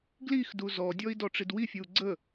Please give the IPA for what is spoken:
ɡ l i x d u z ɔ dʲ ɔ i̯ d ɔ ʈ͡ʂ i d w i fʲ ɯ u̯ ɡ͡ǀ ə

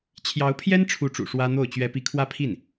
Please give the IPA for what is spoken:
t͡ɕʰ j ɑ˧˥ ʊ̯ pʰ j ɛ˥ n ʈ͡ʂʰ u˧˥ ʈ͡ʂ ṵ˨˩ ʂ w ä˥ n̪ o˥˩ ʊ̯ t͡ɕ ɥ ɛ˥ p i˥˧ kʰ w ä˥˧ pʰ i˥˩ n

